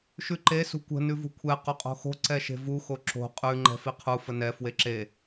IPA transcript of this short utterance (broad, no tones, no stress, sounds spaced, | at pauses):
ʃ ʉ ǃ e s ṳ kʷ ə̤ n ʉ v ṳ kʷʰ ɛ q o qʼ o̤ x o̤ ǀ ɛ ʃ e̤ v u x o ǁ o̤ qʼ ʉ ŋ͡ǃ ɛ̤ f i qʰ u f ə n ɛ f w e ǁ e